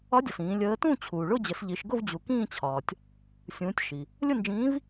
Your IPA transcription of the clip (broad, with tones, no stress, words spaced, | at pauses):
ɒ˧˥dʲɒ˩s ĩː˩˧ lʲəː˧˥ tũ˥˧t͡ɕʰuː˩ɭʊ˥˧ d͡ʑə˩˧sʎi˩˧ʃɡʊ˥˧v d͡ʑu˩kĩː˥˧t͡ɕʰɒː˩tʲ | sʲũː˩˧tʲ ʃi˩ | lʲʊ˥˧nd͡ʒĩː˧˥v